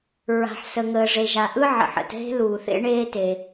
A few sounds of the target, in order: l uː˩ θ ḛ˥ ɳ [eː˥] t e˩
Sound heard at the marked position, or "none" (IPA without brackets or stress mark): eː˥